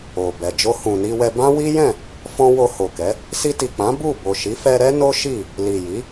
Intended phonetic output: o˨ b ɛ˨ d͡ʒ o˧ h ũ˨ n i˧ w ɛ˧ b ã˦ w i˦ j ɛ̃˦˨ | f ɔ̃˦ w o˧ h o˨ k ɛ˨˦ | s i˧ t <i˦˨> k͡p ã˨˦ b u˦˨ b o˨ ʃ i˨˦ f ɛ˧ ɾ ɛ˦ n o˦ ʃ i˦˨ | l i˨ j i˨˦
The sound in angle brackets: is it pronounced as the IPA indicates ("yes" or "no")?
no